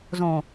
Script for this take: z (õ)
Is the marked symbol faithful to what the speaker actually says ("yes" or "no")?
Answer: yes